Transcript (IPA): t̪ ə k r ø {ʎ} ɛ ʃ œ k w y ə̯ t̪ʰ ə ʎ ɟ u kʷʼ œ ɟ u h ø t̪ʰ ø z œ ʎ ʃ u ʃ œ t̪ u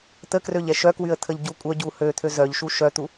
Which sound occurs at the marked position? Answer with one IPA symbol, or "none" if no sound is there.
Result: ʎ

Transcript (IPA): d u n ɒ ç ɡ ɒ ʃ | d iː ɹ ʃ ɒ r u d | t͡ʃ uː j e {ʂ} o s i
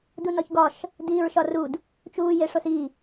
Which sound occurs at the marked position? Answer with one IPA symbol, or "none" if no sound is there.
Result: ʂ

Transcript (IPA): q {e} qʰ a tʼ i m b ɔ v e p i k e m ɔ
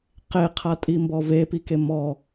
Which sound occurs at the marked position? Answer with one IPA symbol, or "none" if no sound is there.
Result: e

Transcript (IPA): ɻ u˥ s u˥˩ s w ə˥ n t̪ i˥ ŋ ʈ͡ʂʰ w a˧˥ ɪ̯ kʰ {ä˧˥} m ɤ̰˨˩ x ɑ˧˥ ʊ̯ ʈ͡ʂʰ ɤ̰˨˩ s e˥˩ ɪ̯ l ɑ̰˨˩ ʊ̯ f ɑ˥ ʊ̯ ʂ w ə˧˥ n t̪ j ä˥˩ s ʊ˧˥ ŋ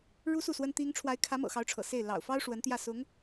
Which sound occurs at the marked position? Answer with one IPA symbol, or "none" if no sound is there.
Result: ä˧˥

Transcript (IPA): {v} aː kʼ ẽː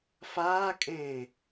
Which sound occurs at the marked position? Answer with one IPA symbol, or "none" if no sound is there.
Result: f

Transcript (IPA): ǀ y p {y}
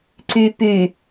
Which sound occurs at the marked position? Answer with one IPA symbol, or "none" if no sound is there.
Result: y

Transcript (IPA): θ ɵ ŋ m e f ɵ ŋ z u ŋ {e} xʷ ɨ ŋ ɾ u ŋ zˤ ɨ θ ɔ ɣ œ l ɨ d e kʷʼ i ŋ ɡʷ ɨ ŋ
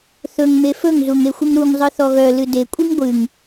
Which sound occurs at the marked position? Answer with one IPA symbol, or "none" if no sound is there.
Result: e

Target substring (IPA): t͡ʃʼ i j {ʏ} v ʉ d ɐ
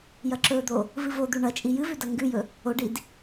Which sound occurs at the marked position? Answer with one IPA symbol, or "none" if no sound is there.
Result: ɨ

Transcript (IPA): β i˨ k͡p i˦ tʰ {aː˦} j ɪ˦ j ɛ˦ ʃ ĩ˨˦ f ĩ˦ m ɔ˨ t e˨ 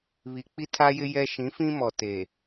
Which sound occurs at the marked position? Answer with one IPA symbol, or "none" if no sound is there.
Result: a˦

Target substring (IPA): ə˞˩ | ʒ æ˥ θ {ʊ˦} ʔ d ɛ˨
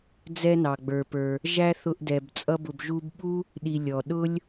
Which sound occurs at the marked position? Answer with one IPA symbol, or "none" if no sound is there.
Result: ʊ˦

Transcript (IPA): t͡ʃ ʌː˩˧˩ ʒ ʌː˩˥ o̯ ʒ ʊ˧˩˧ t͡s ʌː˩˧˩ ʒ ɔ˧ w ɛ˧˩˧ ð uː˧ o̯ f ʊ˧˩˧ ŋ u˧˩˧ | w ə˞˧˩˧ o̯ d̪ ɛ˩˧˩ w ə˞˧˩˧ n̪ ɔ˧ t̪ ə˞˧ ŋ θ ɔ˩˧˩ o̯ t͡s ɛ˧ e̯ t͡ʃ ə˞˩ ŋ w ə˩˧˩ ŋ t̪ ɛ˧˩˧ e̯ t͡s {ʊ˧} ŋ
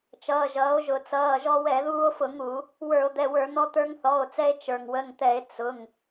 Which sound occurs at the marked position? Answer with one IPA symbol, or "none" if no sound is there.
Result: ʊ˩˧˩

